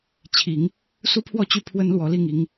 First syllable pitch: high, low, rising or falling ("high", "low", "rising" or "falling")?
rising